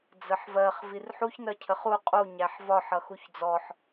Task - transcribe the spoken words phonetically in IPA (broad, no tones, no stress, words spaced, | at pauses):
d͡zəħvɜχ virħuç nɜcʰəχu qʼu ɲæħvɒ ħʌxuçd͡zɔħ